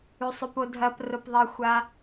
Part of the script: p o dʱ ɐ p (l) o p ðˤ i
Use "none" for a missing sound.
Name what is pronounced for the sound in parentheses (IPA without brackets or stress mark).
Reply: r